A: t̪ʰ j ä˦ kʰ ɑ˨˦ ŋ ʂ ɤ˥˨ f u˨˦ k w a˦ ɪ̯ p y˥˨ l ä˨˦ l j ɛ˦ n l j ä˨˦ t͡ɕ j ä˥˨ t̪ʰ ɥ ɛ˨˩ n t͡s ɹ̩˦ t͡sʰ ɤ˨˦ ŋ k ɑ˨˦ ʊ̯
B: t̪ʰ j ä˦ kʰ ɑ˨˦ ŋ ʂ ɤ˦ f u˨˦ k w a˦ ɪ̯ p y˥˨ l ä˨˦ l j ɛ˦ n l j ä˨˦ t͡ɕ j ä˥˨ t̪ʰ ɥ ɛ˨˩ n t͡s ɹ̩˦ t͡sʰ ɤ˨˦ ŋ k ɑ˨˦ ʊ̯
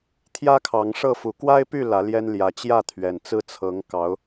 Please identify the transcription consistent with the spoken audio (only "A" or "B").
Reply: A